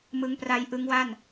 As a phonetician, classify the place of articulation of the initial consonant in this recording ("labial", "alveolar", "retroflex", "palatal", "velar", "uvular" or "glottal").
labial